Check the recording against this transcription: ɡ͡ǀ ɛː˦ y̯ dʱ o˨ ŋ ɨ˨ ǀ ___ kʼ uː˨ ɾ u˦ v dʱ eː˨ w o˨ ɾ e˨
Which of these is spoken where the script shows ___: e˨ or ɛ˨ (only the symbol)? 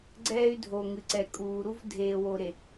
ɛ˨